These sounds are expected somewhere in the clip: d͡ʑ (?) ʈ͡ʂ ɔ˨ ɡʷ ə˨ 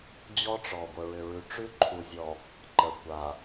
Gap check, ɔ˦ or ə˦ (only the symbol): ɔ˦